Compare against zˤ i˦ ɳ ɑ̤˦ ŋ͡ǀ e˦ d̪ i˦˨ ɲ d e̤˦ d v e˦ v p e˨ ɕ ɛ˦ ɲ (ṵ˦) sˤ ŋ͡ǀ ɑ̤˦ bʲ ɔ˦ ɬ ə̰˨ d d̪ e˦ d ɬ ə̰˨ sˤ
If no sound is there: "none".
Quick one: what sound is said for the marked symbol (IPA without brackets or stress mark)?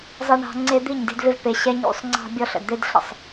ṵ˦